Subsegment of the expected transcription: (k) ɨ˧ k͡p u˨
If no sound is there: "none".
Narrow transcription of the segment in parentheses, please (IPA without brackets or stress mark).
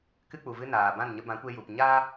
k